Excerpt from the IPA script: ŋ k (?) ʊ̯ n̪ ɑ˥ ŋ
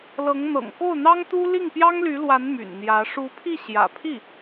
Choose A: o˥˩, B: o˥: A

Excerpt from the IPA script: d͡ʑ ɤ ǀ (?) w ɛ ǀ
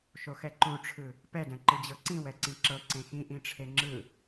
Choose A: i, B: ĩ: B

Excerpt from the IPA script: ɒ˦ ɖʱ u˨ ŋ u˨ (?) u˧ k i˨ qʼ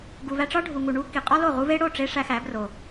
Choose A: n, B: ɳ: B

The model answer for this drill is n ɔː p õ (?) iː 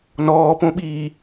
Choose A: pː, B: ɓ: B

